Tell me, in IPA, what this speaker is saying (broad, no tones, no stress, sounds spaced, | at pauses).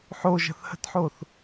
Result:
ħ o ʒ ə̤ θ h ə̤ t ħ o θ